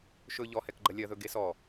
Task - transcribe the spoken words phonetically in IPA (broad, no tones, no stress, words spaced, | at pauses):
ʃɵ ʎɔhɛkɡ͡ǃɐ lʲɐðɵɡe sɔ